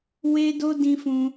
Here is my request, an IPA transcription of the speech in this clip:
w e˧ d o˧ d ĩ˧ f ũ˧

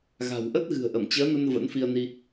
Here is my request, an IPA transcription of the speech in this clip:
ɣ a̤˨˩ w ʔ ə˦˥ t̚ ɣ ɨ̤˨˩ ə̯ ʔ ə˧˩ m t͡ɕ əː˨˦ n ə˧ n v ə̰˧˥ n f i˧ ə̯ n i˧

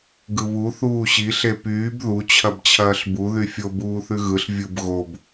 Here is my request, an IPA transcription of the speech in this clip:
ɡ ɯ β u θ uː ɕ i ɬ e p yː b ð u t͡ɕʰ ɐ b t͡ɕʰ ɐː ɬ b u ð y fʲ o b uː θ ʉ ɣ ɯ ɬ vʲ ɯ b ɣ o b

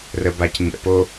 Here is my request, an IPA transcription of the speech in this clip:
r ə b a c ɲ ɛ̰ p o

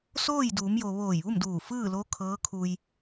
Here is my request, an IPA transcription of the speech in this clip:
s oː˥˨ j d uː˩˧ m j o˩ ʋ oː˧˩ j ʋ u˥˨ m d uː˧˩ f ɯː˥˨ l o˧˥ kʰ ɤː˧˥ kʰ u˧ j

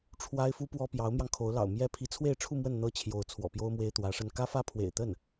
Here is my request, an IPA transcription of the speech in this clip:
ʈ͡ʂʰ w a˥ ɪ̯ f u˥ p w ɔ˥ p j ɑ˧˥ ʊ̯ m j ɑ˧ ŋ kʰ o˧˥ ʊ̯ l ɑ̰˨˩ ʊ̯ m j ɛ˥ pʰ i˧˥ t͡sʰ w e˥˧ ɪ̯ ʈ͡ʂʰ u˥˧ m w ə˥˩ n n̪ ɤ˥ t͡ɕʰ j o˧˥ ʊ̯ t͡sʰ w ɔ̰˨˩ p j o˥ ʊ̯ m w e˥ ɪ̯ t̪ w ä˧˥ ʂ ə˥ n k ä˥ f ä˥ pʰ w ḛ˨˩ ɪ̯ t̪ ə˥˩ n

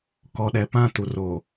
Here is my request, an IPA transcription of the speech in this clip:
k ɔ˨ ɗ ɛ˨ p ã˦˨ t u˨ r o˨

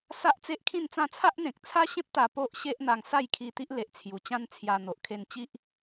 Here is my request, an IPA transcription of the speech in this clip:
s a˦ ʔ t͡s e˦ ʔ kʰ ĩ˥˧ n t͡s ã˥˧ t͡sʰ a˦ ʔ n̪ ẽ˨ k̚ t͡sʰ a˦ ɕ ẽ˦ p̚ t̪ a˧ p o˦ ʔ ɕ e˦ ʔ n̪ a˧ ŋ s a˥˧ j kʰ i˧ t̪ i˦ ʔ l e˨ ʔ t͡sʰ j u˨˩ t͡ɕ ã˦ n t͡sʰ j a˧ n̪ o˨ ʔ kʰ e˧ n t͡ɕ i˦ ʔ

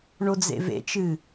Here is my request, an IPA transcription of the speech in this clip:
ɳ o d͡z ḛ v ḛ t͡ʃ ɨ

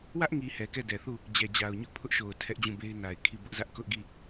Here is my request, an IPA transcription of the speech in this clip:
w ä˦ ʔ ŋ i˨ h ɛ˨ k ɛ˦˨ d ɛ˨ θ u˦˨ | d͡ʑ ɛ˨ d͡ʑ a˨ ʊ̯ ɲ ʊ˦ ʔ pʰ ʊ˦ ʔ ʃ o˨ ʊ̯ tʰ ɛ˦ ʔ d͡ʑ ũ˦˨ b e˦ ɪ̯ n a˨ ɪ̯ kʰ i˦˨ b ʊ˦ ʔ z ä˦ ʔ k ʊ˦ ʔ ɡ i˦˨

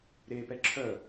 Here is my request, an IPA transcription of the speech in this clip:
ɾ e p ɛ ǁʰ œ

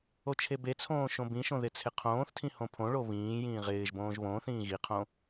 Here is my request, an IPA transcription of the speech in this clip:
o t͡ʃʰ e b e t͡sʰ õː ʃ õ b ĩ ʃ õ ð ɪ t͡sʰ ɪ qʰ õː θ tʰ ĩ h õ pʰ õ ɭ o β ĩː j ĩː ʁ ɪː ʒ b õː ʒ β õː θ ĩː ɣ i qʰ õ

